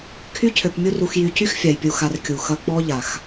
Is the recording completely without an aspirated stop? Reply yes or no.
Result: no